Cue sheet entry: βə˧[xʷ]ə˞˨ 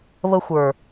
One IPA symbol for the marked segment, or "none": xʷ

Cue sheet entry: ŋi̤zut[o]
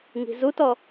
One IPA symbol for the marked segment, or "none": ɔ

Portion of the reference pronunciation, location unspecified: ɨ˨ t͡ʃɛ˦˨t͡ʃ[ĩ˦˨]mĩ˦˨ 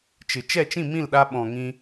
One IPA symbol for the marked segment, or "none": ĩ˦˨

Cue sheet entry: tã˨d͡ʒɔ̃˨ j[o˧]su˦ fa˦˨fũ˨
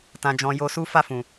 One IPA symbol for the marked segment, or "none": o˧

